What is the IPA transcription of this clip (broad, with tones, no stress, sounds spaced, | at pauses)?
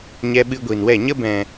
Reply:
ɲ ɛ˧ ɓ ɨ˧ ɡʷ i˨ n w ɛ˦˨ ɲ ə˦ b ɛ̃˨